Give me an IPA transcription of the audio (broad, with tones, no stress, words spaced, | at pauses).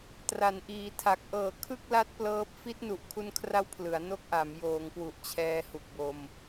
tra˩˦nʔiː˩˦tʰa˨˩k̚ ʔɤː˨˩kʰɯ˥˩k̚la˦˥t̚ plɤː˦˥p̚ fi˦˥t̚nu˨˩ʔkʰu˧nkʰra˦˥w pʰlɯ˩˦a̯no˥˩k̚ʔa˩˦m joː˩˦ŋkwu˨˩ʔ t͡ɕʰɛː˧hu˨˩k̚ bo˧m